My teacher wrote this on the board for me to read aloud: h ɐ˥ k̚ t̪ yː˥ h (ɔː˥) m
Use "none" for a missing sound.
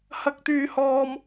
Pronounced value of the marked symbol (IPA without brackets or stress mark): ɔː˥